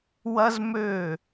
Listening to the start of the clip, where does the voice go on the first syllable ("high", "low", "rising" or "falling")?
high